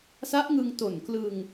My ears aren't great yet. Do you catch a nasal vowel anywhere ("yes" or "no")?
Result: no